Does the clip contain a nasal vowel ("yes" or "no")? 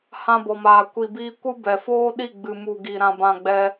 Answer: yes